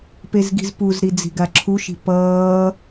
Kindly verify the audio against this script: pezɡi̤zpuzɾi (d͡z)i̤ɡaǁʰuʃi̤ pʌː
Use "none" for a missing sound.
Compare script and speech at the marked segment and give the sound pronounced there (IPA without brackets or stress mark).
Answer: d͡z